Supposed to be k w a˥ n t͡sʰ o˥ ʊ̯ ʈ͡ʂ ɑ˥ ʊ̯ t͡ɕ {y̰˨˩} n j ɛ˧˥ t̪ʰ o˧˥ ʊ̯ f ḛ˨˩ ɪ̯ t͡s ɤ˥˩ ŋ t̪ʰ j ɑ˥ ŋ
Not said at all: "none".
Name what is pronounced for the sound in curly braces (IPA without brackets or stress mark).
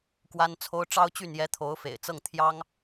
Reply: y˥˩